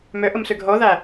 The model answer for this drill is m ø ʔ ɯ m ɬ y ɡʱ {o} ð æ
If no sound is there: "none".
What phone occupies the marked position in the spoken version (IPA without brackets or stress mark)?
o